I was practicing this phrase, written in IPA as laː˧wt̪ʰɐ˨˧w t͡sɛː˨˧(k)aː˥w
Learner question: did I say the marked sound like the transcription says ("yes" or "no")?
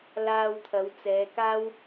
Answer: yes